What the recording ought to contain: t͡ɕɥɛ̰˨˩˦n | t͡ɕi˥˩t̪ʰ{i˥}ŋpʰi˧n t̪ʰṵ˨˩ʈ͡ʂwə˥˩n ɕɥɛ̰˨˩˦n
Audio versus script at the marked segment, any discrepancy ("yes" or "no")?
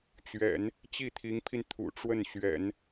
yes